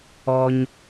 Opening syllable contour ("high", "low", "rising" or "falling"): low